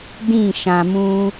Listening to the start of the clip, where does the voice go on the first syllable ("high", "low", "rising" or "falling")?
falling